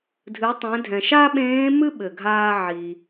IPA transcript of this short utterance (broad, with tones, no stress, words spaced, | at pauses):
dʱɨ˩˧tˤẽ˩˧dʱɛ̃˩ ʃa˥ɓẽː˧˥mɨ˥ ɓɘ˩ɡʱaː˧ʕi˩